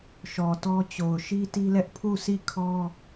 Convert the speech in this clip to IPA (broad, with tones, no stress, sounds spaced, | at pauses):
ʃ ɔ˨ t ɔ˦ t͡ɕ o˨ ʊ̯ ʃ i˦ t i˦ l ɛ˦ ʔ pʰ u˦˨ sʰ i˦˨ kʰ ɔ˦